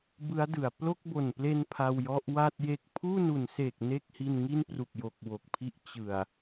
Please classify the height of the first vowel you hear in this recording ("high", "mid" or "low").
high